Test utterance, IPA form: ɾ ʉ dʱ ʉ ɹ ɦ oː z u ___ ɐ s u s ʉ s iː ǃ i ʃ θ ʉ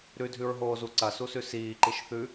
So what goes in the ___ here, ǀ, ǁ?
ǀ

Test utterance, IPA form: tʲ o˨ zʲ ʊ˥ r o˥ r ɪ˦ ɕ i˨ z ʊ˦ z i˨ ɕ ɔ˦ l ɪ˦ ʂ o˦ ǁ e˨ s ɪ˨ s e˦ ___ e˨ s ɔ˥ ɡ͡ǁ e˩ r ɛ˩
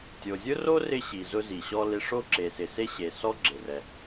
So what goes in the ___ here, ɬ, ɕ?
ɕ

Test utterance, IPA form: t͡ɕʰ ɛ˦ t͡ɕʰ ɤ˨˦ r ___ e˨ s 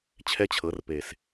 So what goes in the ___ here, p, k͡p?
p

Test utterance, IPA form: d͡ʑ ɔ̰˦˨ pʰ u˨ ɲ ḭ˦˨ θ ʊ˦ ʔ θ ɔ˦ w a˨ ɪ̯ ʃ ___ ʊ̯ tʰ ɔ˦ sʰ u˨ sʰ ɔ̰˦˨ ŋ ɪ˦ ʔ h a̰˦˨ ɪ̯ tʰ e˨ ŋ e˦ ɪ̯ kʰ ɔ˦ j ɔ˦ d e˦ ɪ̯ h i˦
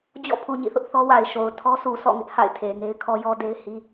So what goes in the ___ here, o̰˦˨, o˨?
o˨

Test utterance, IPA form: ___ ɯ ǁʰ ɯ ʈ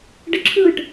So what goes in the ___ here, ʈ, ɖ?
ɖ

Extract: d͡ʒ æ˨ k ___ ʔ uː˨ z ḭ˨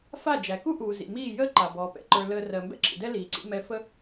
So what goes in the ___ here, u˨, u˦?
u˦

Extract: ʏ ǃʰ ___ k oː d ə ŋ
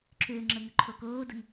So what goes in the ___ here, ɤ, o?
o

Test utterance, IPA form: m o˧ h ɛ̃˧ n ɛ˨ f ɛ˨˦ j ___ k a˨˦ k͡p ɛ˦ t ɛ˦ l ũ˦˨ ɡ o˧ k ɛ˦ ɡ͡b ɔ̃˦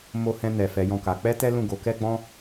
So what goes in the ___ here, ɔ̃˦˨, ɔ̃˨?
ɔ̃˦˨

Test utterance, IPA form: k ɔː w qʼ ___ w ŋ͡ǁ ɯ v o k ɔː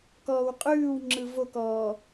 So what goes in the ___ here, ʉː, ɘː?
ʉː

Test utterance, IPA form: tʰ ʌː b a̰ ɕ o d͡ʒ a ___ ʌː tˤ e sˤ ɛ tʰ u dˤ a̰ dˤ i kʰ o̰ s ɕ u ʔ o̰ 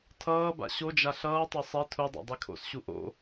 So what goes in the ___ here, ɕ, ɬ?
ɬ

